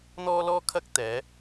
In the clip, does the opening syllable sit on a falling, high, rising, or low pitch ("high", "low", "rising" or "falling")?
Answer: high